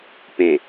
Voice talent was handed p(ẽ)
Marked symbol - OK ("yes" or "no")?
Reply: yes